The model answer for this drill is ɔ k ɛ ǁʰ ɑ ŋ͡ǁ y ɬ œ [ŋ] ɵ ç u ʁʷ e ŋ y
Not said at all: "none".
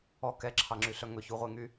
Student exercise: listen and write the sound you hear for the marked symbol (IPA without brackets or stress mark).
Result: ŋ